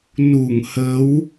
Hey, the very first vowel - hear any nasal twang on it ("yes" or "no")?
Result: no